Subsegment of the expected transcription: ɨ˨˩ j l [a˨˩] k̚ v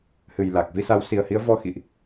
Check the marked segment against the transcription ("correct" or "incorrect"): correct